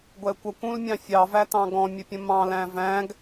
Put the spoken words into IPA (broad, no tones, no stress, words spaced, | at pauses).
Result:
ɡʷɛkʷʌkʷũlmʲɑ̃ fʲɑvætɑ̃ ɡɔ̃mʲəpʲə̃ mɑ̃læ̃ væ̃ɡ